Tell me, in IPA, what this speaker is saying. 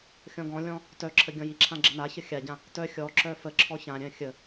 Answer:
xʲ ɔ̃ ɡ ɔ̃ lʲ ɔ̃ | t œ ǁʰ ə ɡʲ ɔ̃ j i ǁʰ ã ɡ͡ǁ ə n a ç ə xʲ a ɟ ã | t œ xʲ ɔ ǁ œ f ə ǁʰ ɔ ç ã ɾʲ œ̃ xʲ ə

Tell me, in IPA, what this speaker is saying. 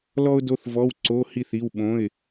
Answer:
l ɔ˥ ʊ̯ d o˧˥˧ θ v ɔ˧˥˧ w ǀ o˧˥˧ h i˥˨ θ i˧˥˧ w ɓ õ˧˥˧ ɪ̯

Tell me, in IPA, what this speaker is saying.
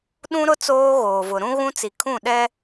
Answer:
ɗ ũ˦ ɾ ʊ˦ t͡s oː˦ ɣ oː˨ v ʊ˨ ɾ ũ˦ ɣ ũ˦ t͡s i˨ kʰ ũ˦˨ ɗ ɛ˦

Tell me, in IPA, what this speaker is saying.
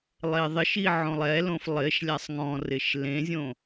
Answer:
lˠ e ðˤ ɪ ʃ i ʕ õ lˠ ɛ l õ f lˠ ɪ ʃ lʲ a sˤ ŋ ɔ̃ r ɪ ʃ l ẽ zʲ õ

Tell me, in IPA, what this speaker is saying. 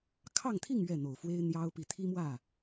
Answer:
kʰ ɑ˥˧ ŋ t̪ʰ i˥˧ ŋ ɥ ɛ˥˩ n̪ o˨˩ ʊ̯ f w e˥ ɪ̯ n̪ j ɑ˥ ʊ̯ p i˨˩ t̪ʰ i˥ m w ä˥˩

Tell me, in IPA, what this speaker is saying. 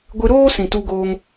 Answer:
ɡʷ ɨ˧ ɾ oː˦ s ĩ˨ t u˧ ɡ oː˧ ŋ

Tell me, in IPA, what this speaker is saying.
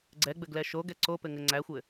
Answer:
ɡ͡ǀ ɛ ɡ͡b ɘ ɡ l ɛ ʃ o ɡ ɛ ǀ o p ɘ ŋ ɘ ŋ͡ǀ æ xʷ ɘ

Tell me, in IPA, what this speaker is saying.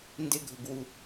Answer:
n d ɪ ɡʱ ʊ ɡ w u

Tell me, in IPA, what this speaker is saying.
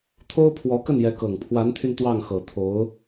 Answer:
t̪ʰ o˥ ʊ̯ pʰ w ɔ˧˥ k ə˥˩ n j ɛ˧˥ k ɤ˨˩ ŋ pʰ w a˧˥ n t̪ʰ y˧ n t̪ w ɑ˥˩ ŋ x ɤ˨˩ t̪ʰ o˧˥ ʊ̯

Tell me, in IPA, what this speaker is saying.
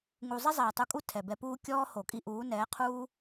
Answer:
ŋ u˨ zˤ i˦ zˤ ɛː˨ tˤ u˧ kʼ u˦ tʰ ɛ˨ b ɛ˧ p uː˦ kʲ ɔː˦ h o˨ kʼ i˦ ʔ uː˨˦ n ɛː˨˦ qʰ uː˦

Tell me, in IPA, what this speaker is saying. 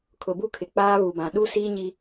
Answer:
kʰ ʊ˨ b u˦ kʰ ɪ˨ k͡p aː˦ β u˨ b ã˨ ɗ u˦ s iː˦ ɲ i˦

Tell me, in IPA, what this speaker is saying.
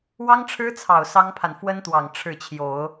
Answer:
w ɑ˥ ŋ ʈ͡ʂʰ ɻ̩˥ t͡sʰ ɑ˨˩ ʊ̯ s ɑ˥ ŋ pʰ a˨ n f w ə˥ n t̪ w ɑ˨˩ ŋ ʈ͡ʂʰ ɻ̩˥˩ t͡ɕʰ j o˨˩˦ ʊ̯

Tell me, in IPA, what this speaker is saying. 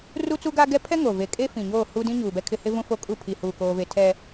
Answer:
r u˦ t͡s u˦ ɡ a˦ ɡ ɛ˦ pʰ ɛ˦ ŋ o˨ v e˨ kʼ e˦ f ĩ˨ ɲ oː˦˨ h u˦ d ĩ˦ ɲ uː˨ b ɛ˦ kʰ ɪ˦ h ɪ˦ v ũ˦ f o˦ kʼ u˦˨ pʰ i˨ h uː˨ k oː˦ v e˦ tʰ ɛ˦

